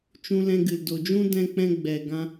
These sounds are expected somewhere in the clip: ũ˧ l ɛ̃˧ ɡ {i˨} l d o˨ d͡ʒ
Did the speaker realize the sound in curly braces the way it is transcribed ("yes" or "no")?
no